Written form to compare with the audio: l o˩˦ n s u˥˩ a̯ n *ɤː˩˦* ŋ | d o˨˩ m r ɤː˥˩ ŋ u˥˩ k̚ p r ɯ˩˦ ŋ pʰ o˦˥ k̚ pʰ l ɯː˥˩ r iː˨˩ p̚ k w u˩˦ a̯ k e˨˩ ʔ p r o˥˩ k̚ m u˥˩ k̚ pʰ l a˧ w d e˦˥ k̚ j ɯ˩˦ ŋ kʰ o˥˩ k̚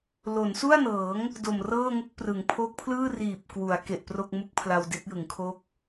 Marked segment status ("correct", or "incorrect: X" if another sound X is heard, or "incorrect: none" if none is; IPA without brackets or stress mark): correct